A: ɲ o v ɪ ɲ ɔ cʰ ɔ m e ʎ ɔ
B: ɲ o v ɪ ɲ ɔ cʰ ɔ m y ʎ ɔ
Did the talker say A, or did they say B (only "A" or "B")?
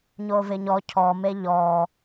A